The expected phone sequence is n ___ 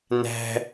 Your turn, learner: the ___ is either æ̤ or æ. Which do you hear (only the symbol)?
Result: æ̤